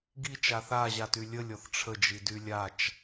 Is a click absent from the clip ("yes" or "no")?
yes